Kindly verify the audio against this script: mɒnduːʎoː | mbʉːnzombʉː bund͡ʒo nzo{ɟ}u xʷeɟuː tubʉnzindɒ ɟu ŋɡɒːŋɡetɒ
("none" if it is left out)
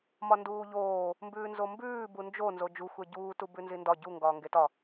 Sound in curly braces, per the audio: d͡ʒ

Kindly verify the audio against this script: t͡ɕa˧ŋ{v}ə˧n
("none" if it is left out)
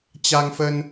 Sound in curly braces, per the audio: f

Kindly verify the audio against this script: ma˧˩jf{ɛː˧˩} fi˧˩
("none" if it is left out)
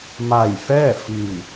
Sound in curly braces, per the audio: ɛː˥˨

